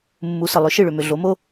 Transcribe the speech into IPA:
mːu˩˥sə˩ lˠʏ˩˥ʃɨ˥˩ɭʏ˩mʏ˩ ɮo˩˥mo˥

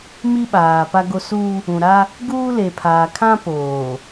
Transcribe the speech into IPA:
mi˦ɓaː˨ pa˦ɡo˦ su˦ | ũ˨ɾa˦ | ɡuː˦le˨pʰaː˨kʰã˦ poː˨

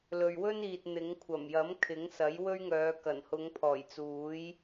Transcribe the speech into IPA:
lɵ˨ɥwɵ˥niː˨t̚ n̪ɪ˨˥ŋ kʷʰɐ˨˩mjɐ˨˥m kʰɪ˨˥ŋsɐ˨˥j wɵ˥ɥŋœː˨˧ kɐ˨˩nhʊ˨˧ŋ pʰɔː˨˩jt͡suː˨˥j

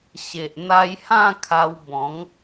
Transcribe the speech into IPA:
ɕe˨ʔn̪a˧jhã˥˧ kʰa˧wbɔ̃˨˦ŋ

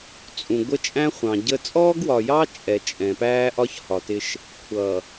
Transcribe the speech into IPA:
t͡sʼũ˨ ɡʷə˦t͡ʃʼæ̃˦ χʷɑ̃˨ɟə˦ t͡sʼɔː˦ɡwɒ˨jɑ˦ t͡ʃʼɛ˨ t͡ʃʼɛ̃˨ pæː˦ʔɒ˦ç hɒ˨tɪ˦ʃ | kʷʰʌː˨

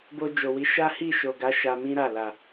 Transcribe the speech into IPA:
bo˧d͡ʒo˨wi˨˦ ʃa˦ hi˦˨ʃo˨ɡa˨˦ ʃa˧mĩ˦ɾa˦˨ la˨

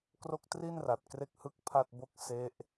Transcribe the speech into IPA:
kro˥˩k̚ tri˥˩nra˨˩t̚ kre˥˩k̚hɯ˥˩k̚pʰa˥˩t̚bo˥˩k̚ se˦˥ʔ

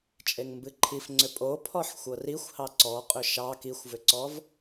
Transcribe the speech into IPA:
t͡ʃʼeŋmbɨǃʰifŋ͡ǀʏ pʼopʰɔħ xʷɤrixʷhɑ ǀɔqʼʏ ʃɑ kixʷvʏǀɔv

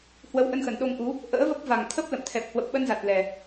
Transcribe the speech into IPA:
hwə˨˦wʔə˧nxə˧˩n ɗo˧ŋʔu˨˦ | ʔə̰ː˧˥və˦˥p̚ va˨˩ŋt̪ʰə˦˥p̚lə̰˧˨mt̪ʰɛ˨˩p̚ hwə˨˩p̚ɓə˧nza˨˩t̚ lɛ˨˩

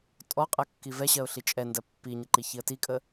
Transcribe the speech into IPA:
tʼɔqʼɜ kːivɛɕɜʊ̯ ɬit͡ʃʼɛndɜ pːiɲə ǃiçiə̯tikʼə

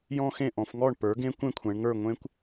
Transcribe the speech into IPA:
jɔ̃˥˧xẽ˥˩ ʔɔ̃˩˧fŋɔ˥˩ɳ pə˞˩˥ɡẽ˦˥ kʷẽ˥˧kʷʰɛ̃˩˧ɳŋə˞˥˩ ŋʷẽ˦˥kʷ

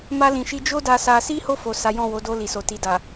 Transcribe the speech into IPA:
ma˧lĩ˨ʃi˧ d͡ʒo˦da˧sa˧ si˦ho˦˨fo˨ sa˨˦jɔ̃˦˨wo˨˦ do˧li˨so˨ti˨ da˨

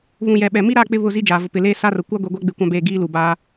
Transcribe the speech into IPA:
βũ˨ jɛ˨ɓɛ˨mi˦ ɾa˦˨ k͡pɪ˦βʊ˦˨zi˦ d͡ʒaː˨vʊ˨ pɪ˨leː˦ sa˦rʊ˨ kʷa˦ɡʷi˨ɡʷa˦ ɡ͡bɪ˦kʷã˦beː˦˨ɡiː˦ lu˨baː˦

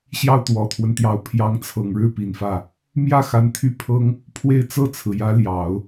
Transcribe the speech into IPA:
ɕjɑ˥˩ʊ̯t̪wɔ˨˩t̪ʰwə˦nt̪jɑ˧˥ʊ̯ pʰjɑ˧˥ŋt͡sʰɤ˨˩ŋɻɻ̩˥˩ pi˨˩nfä˥˩ | mjä˥˩ xa˧˥nt̪ʰy˥˩pʰɤ˥ŋ | pʰwe˥˧ɪ̯t͡sɤ˥˩t͡sʰɹ̩˩ jä˧˥ljɑ˨˩˦ʊ̯

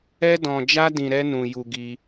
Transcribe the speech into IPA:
ɛ˦dɔ̃˧ d͡ʒa˦dĩ˧ ɾɛ˦nũ˧ju˧ɡi˧

